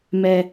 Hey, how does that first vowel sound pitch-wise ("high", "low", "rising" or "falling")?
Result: low